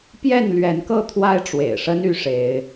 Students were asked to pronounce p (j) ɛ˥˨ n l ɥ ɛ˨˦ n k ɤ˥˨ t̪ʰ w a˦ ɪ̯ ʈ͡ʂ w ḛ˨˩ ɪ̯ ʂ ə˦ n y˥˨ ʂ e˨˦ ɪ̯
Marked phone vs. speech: correct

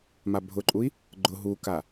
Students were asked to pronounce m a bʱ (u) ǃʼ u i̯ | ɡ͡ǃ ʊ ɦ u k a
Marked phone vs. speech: incorrect: ʊ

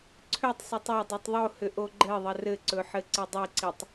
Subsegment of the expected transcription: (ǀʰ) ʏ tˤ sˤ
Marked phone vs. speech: correct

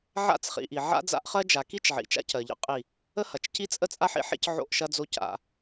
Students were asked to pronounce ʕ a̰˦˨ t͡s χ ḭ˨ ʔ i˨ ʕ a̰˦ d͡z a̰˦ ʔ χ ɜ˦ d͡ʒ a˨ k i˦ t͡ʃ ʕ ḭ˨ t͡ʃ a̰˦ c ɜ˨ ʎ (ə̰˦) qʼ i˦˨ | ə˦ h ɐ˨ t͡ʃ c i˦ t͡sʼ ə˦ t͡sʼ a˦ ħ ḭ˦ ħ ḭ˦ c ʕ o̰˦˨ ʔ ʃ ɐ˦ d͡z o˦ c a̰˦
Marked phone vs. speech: correct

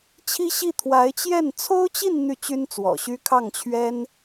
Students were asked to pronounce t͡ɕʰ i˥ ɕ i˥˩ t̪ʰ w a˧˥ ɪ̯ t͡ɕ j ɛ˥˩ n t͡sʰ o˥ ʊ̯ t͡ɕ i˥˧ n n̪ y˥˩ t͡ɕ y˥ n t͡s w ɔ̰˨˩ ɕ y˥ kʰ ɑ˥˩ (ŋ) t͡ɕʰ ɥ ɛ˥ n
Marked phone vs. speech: correct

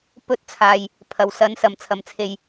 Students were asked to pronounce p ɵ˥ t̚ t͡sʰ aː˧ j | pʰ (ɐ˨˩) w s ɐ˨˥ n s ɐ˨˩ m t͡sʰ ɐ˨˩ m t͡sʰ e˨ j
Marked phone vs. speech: correct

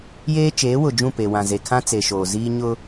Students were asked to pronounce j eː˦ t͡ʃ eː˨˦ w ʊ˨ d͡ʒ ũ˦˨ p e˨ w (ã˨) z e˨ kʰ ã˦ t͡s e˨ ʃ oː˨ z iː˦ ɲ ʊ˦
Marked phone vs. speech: correct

